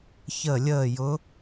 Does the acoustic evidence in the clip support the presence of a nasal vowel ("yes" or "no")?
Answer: no